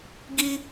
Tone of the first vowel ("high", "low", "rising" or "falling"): high